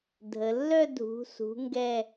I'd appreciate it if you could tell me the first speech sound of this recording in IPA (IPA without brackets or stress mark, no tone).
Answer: dʱ